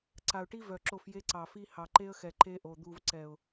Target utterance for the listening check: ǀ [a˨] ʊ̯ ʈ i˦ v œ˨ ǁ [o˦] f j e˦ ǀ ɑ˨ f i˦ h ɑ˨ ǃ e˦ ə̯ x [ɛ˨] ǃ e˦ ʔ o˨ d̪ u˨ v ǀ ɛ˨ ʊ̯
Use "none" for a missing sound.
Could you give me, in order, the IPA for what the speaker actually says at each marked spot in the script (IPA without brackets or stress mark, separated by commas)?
a˨, o˦˨, ɛ˨